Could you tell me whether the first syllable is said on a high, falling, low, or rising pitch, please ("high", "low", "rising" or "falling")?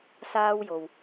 high